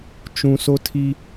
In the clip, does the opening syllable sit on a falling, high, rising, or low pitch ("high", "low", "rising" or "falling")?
low